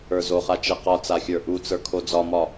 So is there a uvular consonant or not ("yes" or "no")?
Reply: yes